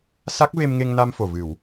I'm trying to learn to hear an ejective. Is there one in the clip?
no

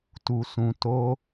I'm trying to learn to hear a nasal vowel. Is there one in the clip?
yes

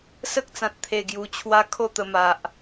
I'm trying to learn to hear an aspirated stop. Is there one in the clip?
yes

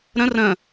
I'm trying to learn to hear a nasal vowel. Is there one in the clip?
yes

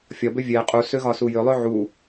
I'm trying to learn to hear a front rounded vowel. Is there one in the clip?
yes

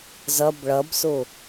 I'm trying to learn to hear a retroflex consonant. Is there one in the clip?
yes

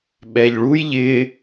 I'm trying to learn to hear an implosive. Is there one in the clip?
yes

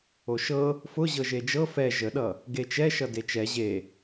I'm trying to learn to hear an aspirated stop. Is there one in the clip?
no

